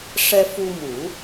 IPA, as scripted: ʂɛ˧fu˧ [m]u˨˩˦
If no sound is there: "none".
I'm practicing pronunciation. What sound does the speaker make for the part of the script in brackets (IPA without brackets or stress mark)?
m